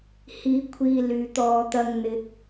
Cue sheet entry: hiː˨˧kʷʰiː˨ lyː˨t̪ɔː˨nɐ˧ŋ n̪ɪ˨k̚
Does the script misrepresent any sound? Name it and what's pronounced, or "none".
n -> t̪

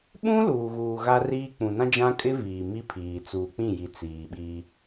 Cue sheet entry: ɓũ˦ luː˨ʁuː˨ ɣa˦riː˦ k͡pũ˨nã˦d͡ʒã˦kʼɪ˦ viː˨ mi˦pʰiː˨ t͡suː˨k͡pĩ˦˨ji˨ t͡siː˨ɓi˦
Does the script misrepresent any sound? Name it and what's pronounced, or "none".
ʁ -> ɣ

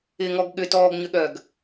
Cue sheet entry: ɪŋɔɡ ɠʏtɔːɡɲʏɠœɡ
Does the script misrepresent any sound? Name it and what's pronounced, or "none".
none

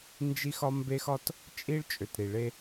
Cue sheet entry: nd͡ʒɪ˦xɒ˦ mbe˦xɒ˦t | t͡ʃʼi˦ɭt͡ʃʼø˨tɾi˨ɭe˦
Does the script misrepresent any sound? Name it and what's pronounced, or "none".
ɪ˦ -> i˦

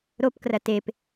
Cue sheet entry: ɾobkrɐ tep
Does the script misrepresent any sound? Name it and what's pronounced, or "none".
b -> p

